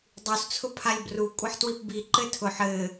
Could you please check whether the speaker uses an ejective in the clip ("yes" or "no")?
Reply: yes